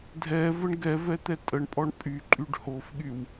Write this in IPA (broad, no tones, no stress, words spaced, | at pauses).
dʱɛ vəɳɡɛvɛ t̪ɛtʼəɳpʼɔɳ pʼyǃʼyɖ hofɠyw